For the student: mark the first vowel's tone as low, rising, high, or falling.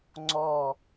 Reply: falling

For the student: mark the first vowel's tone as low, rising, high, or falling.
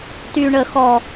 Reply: low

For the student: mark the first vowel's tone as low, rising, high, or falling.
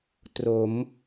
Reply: rising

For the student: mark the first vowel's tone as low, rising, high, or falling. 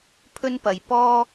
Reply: high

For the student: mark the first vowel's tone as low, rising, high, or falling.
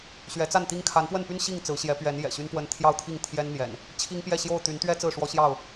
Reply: rising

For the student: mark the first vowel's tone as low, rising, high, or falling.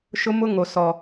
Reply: high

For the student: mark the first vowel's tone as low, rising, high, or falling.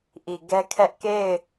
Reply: low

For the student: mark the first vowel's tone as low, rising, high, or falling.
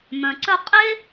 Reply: low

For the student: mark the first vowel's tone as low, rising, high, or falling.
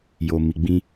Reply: low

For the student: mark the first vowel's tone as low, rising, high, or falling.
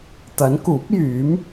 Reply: rising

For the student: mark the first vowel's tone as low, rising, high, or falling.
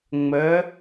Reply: rising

